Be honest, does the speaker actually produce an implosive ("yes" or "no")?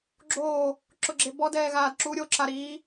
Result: no